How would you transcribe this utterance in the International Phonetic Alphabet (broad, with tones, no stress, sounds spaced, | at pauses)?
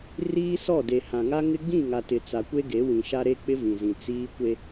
r iː˦ s ɔ˦˨ d e˨ h ã˨ ŋ a˦ ŋ ɪ˦ ɡ͡b ĩ˦˨ ŋ a˨ t ɪ˨ t͡s a˨ kʷ e˦ ɡ e˨˦ w ĩ˨ ʃ a˦ ɾ e˦ k͡p ɪ˦ v ĩ˨ z ĩ˨ t͡s iː˦ kʷ e˦